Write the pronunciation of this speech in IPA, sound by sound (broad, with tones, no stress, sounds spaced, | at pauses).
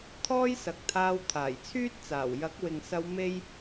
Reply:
t̪ʰ ɔː˥ j s ɐ˨ k̚ t̪ʰ aː˧ w t̪ʰ aː˨˩ j t͡sʰ yː˥ t̚ t͡s aː˨˩ w j ɐ˨˥ k̚ w ɪ˨ ŋ s ɐ˧ w m e˥ j